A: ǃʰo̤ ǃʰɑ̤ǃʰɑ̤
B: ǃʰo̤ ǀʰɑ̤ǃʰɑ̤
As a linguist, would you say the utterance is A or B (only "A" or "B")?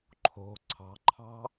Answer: B